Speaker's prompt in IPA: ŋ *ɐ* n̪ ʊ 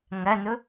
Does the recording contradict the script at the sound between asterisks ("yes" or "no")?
no